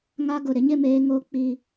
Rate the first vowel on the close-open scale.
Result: open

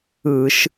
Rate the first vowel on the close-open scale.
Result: close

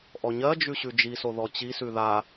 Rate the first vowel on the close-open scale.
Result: mid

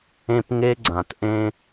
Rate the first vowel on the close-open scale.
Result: mid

